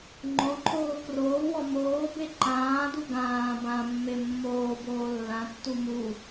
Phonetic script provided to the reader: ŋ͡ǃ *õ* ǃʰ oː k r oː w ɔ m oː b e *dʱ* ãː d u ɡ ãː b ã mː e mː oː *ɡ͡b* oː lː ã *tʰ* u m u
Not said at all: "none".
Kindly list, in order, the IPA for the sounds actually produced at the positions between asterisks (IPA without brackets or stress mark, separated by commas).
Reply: õ, ǃ, b, tː